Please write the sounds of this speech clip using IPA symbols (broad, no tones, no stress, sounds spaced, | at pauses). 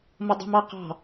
m ʌ dˤ ṳ m ɑ q ɑ̤